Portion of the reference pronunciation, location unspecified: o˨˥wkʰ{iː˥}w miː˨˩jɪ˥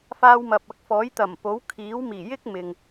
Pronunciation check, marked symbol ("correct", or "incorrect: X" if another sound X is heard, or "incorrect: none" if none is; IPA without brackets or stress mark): incorrect: iː˨˥